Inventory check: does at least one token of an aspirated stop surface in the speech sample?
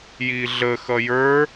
no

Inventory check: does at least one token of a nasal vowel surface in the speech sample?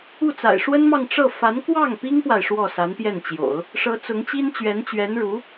no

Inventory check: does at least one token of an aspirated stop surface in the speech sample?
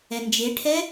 yes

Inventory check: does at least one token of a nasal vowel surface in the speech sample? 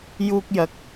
no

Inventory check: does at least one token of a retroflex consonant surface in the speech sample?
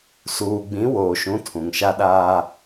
no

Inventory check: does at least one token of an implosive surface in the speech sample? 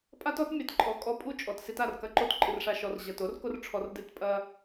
no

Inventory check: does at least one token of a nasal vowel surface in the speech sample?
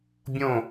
yes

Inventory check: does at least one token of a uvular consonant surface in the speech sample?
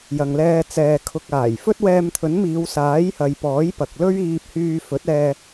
no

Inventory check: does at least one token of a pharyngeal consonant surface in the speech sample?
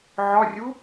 yes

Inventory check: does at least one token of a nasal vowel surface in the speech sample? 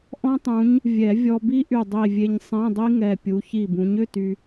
yes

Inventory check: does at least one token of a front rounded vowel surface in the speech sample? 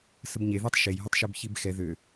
yes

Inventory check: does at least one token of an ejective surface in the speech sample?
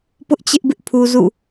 no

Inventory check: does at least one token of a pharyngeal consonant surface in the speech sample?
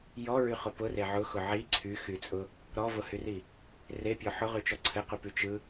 yes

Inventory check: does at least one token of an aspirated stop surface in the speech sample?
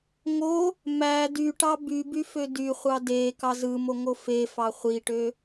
no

